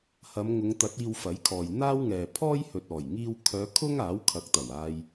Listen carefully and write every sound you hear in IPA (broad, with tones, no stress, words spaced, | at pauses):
hɐ˨˧mŋʊ˨˧ŋt̪ɐ˨˥t̚ iː˧wfɐ˨˥jkʰɔː˨j n̪aː˥w ŋɛː˨pʰɔː˥j hɵ˨t̚ɔː˨˩jŋiː˧w kʰœː˨˧kʰʊ˥ŋ aː˨˥wkʰɐ˨˥k̚t̪ɐ˨˩w aː˧j